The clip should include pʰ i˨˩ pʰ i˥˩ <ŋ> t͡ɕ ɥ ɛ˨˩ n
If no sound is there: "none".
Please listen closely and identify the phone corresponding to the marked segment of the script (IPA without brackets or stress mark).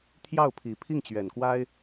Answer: ŋ